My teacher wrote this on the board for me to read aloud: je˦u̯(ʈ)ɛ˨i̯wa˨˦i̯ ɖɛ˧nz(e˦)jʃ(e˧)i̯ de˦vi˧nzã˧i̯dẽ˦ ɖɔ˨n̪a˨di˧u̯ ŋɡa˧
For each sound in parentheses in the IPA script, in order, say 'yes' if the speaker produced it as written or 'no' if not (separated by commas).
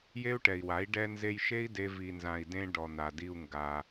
yes, no, no